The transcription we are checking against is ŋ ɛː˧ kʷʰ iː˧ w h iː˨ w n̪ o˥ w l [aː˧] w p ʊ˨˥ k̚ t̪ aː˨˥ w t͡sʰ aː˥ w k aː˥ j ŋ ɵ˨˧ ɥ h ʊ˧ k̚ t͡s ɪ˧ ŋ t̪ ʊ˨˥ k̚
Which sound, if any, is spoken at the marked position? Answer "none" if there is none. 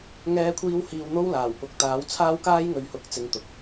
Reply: aː˨˩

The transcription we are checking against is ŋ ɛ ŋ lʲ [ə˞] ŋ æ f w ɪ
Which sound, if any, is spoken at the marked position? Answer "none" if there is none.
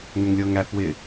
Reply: ɤ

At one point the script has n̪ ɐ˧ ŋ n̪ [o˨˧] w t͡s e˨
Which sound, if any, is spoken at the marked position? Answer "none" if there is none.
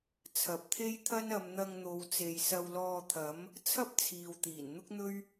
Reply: o˨˧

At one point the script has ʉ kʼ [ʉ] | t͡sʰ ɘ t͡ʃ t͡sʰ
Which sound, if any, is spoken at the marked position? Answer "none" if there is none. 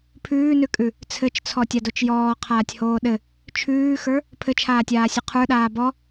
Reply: ʉ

